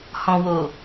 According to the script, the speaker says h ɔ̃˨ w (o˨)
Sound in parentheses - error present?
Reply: no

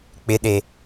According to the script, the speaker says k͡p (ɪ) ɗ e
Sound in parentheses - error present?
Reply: no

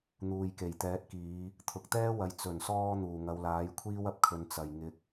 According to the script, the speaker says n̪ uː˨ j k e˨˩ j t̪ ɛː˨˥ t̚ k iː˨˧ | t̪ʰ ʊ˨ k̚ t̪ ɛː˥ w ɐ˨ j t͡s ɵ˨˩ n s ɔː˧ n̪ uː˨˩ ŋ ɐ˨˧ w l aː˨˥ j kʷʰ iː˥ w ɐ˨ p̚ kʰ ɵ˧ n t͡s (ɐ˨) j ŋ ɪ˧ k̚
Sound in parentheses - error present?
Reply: no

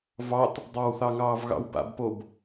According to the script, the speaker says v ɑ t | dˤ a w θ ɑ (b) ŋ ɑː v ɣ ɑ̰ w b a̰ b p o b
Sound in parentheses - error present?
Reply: yes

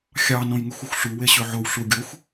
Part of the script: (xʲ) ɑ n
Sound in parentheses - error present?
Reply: no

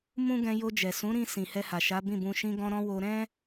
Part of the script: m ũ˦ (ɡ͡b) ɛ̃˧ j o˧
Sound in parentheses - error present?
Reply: yes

